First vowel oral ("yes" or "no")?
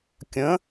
no